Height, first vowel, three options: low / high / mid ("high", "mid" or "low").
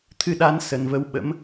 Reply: high